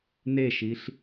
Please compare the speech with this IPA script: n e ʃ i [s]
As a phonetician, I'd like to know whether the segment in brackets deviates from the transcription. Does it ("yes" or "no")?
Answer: yes